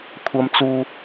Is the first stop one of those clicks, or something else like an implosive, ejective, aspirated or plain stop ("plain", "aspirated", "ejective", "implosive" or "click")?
aspirated